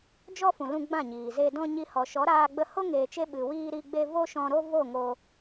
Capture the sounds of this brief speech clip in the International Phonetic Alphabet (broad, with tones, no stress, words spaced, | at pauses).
d͡ʒɔ˦fũ˨ lũ˧ɡ͡bã˦˨ɲiː˨ze˧ dɔ̃˧ɲi˧ hɔ˨ʃɔ˨˦ɾaː˧ɡ͡bə˧ ho˦ŋeː˨t͡ʃe˧ ɓɨ˨wiː˧ɾi˧ ɡ͡be˧ vo˦ʃɔ̃˧ɾo˦ vo˦˨ŋo˧